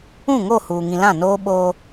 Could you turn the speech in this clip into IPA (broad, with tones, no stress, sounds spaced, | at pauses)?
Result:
ũ˦˨ ŋ o˦˨ h uː˨ ŋ ĩ˨ l ã˦˨ n oː˦ ɓ oː˦